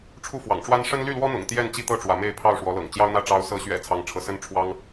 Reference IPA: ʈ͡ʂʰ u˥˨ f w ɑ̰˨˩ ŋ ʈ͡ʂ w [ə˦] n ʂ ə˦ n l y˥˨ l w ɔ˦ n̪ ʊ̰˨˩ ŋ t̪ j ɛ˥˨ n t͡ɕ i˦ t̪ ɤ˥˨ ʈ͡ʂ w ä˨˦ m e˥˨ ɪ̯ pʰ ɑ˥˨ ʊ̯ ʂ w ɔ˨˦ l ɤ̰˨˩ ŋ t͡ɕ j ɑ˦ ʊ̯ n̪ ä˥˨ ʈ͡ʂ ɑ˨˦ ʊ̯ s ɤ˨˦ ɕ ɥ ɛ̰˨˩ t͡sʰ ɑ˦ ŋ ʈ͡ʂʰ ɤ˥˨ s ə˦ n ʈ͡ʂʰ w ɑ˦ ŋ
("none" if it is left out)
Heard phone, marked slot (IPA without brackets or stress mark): a˦